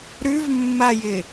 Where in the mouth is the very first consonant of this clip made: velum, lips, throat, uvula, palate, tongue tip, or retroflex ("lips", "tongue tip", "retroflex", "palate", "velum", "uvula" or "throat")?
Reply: tongue tip